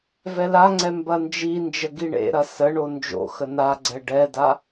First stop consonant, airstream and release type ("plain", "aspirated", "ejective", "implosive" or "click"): click